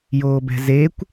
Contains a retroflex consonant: no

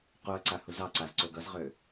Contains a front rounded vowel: yes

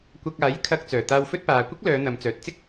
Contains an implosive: no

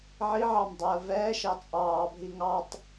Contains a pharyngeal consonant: yes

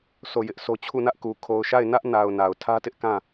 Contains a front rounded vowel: no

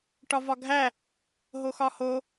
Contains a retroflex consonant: yes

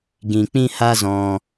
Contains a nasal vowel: yes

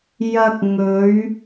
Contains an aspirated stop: no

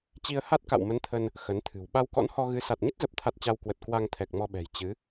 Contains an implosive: yes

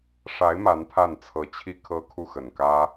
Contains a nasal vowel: no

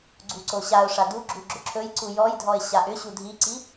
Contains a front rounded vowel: yes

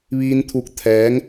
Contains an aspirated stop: yes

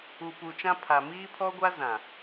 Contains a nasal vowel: yes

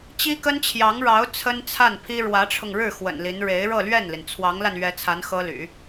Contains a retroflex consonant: yes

